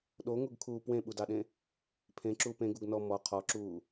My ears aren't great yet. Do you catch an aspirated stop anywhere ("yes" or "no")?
yes